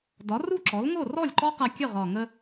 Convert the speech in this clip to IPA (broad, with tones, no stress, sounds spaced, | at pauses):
d ɒ˩˥ r u˥˩ ǁ ɔ˩˥ l ŋ o˥˩ r ɔ˥˩ lʲ ǃ ɔ˦˥ q a˧ kʲ ə˥˩ ʁ ɒ˨˩ ŋ ə˧